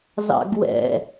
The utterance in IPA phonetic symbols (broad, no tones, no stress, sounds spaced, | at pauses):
z ɑ̰ ɡ w ɛ̰